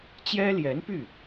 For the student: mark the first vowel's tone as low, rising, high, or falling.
high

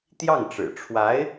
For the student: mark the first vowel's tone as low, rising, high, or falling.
falling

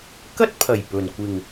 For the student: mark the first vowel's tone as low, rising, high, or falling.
high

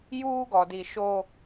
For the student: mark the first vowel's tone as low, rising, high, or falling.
high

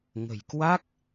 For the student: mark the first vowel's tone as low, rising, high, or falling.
low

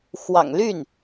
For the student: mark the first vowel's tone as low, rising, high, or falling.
low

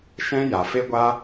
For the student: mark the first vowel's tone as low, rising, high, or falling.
high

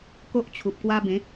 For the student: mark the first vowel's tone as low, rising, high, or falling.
high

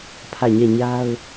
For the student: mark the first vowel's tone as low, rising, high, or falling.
falling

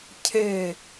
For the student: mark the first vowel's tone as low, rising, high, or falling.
falling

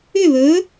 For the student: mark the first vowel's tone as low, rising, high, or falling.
falling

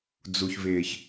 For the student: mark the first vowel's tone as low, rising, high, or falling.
low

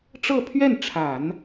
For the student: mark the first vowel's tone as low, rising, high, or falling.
falling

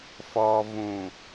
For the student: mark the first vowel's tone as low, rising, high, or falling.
low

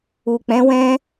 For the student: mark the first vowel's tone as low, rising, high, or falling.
low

